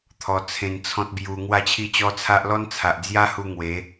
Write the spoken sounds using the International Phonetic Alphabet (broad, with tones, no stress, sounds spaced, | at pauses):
t̪ʰ ɔ˧ t͡sʰ ẽ˧ n t͡sʰ ɔ̃˦ t̚ b j u˧ ŋ w a˥˧ t͡ɕʰ i˦ t͡ɕ ɔ˦ t͡sʰ a˦ ʔ l ɔ˦ n t͡sʰ a˨ ʔ d͡z j a˦ h u˧ ŋ w e˨˦